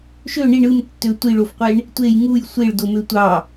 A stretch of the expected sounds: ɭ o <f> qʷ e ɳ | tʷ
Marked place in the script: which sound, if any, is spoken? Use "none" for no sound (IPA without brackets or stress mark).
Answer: f